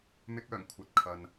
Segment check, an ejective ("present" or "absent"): absent